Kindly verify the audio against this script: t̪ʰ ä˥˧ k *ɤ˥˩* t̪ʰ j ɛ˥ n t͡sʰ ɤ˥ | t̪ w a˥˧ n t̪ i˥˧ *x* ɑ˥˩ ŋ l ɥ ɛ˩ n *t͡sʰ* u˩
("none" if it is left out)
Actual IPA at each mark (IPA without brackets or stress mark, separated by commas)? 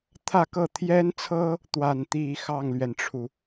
ɤ˥˩, x, ʈ͡ʂʰ